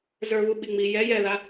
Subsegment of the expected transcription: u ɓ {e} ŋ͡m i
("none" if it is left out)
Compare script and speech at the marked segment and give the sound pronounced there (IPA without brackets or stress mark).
i